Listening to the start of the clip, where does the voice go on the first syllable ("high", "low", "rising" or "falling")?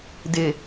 low